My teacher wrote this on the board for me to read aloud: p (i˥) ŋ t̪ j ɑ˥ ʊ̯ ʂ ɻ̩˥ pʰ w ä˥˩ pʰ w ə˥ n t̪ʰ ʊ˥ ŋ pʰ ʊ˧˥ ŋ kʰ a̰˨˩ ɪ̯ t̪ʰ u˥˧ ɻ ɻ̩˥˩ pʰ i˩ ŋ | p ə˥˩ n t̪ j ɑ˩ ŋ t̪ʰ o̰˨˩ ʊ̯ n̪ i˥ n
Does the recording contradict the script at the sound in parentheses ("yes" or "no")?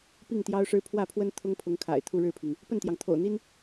yes